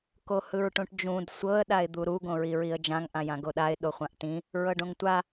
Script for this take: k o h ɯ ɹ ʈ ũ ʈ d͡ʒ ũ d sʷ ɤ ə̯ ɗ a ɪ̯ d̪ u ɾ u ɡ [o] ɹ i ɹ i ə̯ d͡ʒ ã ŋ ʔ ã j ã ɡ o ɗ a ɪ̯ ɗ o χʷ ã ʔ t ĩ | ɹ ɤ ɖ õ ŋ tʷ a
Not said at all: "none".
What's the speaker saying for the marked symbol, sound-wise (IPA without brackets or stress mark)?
õ